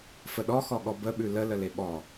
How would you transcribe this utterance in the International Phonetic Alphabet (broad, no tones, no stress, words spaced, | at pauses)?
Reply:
fəɗɔxɔɠɔ bəɓʉ lələle ɓɔ